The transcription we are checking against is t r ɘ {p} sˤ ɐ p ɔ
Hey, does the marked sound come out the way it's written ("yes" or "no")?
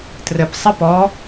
yes